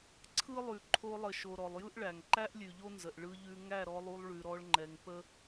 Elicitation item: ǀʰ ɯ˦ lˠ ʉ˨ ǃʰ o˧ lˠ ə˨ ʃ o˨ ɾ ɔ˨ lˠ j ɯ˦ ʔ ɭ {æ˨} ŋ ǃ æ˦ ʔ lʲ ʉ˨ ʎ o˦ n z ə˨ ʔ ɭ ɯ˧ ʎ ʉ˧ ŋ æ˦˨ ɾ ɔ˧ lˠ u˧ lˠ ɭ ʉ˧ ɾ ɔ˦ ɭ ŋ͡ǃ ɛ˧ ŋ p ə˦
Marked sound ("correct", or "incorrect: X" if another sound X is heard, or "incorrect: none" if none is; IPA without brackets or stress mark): correct